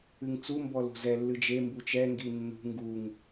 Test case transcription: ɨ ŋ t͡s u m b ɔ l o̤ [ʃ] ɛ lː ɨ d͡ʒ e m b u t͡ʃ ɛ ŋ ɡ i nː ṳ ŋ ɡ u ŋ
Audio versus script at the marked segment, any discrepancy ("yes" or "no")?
yes